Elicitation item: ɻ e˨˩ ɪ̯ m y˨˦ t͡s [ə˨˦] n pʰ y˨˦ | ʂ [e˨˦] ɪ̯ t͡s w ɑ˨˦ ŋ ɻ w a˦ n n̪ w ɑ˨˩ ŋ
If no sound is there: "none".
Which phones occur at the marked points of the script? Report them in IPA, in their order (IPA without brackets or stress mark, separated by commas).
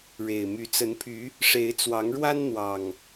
ə˨˦, e˨˦